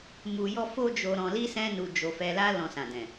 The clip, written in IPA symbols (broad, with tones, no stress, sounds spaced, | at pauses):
m u˧ j ɔ˦ f o˦ d͡ʒ o˧ ɾ ɔ̃˧ l i˦ s ɛ̃˦ n u˧ d͡ʒ o˧ f ɛ˧ l a˦ l ɔ̃˧ s ã˨ d ɛ̃˨